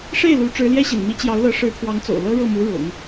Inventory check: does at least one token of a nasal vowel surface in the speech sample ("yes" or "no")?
no